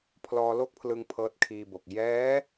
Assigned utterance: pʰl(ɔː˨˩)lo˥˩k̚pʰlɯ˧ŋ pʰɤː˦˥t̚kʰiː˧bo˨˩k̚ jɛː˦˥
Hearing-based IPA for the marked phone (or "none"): ɔː˧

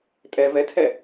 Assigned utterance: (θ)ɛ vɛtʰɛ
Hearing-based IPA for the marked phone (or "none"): tʼ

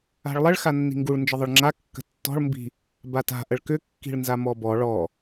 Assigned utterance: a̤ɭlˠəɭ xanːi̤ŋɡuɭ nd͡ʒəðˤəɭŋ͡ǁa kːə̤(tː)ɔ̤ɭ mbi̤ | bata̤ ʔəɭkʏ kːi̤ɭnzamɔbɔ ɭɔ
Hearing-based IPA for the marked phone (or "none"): tː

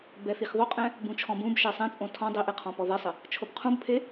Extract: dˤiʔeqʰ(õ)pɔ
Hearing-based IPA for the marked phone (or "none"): ɔ̃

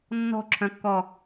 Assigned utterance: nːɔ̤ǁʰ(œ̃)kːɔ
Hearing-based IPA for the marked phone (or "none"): œ̃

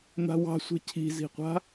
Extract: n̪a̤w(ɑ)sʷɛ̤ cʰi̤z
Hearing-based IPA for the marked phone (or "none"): ɑ̤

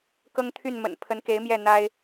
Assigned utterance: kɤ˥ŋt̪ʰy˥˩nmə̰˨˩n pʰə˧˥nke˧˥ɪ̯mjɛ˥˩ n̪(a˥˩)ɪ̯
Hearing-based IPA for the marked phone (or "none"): a˥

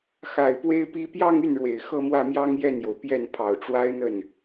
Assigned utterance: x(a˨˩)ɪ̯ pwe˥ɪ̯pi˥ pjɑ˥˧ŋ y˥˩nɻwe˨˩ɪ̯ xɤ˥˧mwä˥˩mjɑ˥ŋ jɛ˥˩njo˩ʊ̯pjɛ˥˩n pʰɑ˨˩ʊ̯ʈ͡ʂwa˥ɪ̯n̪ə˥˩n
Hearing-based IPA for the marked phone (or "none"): a˨˩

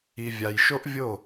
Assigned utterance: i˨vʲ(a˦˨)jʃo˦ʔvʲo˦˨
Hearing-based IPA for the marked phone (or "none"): a˨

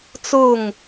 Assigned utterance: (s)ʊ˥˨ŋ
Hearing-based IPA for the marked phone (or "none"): t͡s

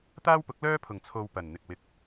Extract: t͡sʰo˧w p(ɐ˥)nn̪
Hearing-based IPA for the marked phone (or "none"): ɐ˨˩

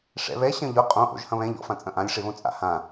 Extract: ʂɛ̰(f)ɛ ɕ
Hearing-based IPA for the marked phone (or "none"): β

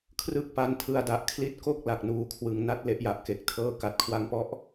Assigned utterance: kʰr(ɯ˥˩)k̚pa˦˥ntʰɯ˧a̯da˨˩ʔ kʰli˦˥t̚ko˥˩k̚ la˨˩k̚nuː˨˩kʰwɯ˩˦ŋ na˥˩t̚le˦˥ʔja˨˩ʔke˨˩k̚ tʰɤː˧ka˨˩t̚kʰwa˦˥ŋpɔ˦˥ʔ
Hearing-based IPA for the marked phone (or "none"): ɯ˥˩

